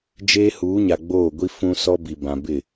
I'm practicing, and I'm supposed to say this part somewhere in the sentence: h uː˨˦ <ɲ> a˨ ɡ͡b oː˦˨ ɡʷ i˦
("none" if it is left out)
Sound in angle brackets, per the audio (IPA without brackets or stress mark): ɲ